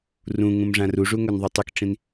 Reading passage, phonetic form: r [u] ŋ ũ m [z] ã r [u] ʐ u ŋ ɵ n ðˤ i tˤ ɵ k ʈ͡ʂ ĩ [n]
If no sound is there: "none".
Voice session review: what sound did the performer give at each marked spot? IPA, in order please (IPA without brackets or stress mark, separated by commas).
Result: ũ, ʐ, u, n